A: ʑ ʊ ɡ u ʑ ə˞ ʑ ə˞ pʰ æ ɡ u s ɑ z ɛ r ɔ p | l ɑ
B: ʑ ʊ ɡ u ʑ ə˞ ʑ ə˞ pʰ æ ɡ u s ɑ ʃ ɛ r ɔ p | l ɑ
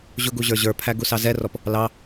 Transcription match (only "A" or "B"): A